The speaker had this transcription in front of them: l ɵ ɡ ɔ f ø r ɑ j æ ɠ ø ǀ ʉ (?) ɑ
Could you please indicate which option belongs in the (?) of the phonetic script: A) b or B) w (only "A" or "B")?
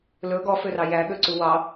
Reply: B